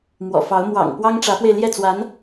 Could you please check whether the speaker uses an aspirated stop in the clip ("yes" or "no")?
no